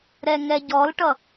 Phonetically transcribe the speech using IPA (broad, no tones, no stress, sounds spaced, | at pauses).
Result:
ɾ ɛ ŋ ɛ ɟ ɔ l ʈ ʌ